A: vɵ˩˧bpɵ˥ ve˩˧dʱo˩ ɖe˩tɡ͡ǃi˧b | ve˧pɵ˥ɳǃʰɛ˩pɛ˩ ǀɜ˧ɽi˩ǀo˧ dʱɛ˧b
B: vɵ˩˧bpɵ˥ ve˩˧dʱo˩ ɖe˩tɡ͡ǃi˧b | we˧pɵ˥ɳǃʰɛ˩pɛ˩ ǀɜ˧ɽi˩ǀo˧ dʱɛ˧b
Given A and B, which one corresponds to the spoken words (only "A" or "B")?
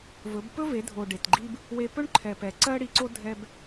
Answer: B